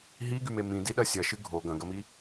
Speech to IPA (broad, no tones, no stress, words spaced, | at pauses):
ɦiɡyme mĩdiɗɐ sʲɐʃɨ ɡʱo ɡɐ̃ɡɐmi